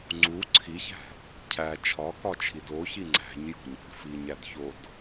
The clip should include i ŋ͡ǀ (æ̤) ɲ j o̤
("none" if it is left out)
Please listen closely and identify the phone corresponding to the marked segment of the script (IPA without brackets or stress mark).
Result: æ̤